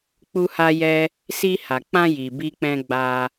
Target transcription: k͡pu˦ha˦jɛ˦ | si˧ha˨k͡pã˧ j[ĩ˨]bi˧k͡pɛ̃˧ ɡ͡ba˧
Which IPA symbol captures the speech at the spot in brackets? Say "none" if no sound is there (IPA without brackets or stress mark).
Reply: i˨